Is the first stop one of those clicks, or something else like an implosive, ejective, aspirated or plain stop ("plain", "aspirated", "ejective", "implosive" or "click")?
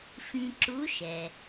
click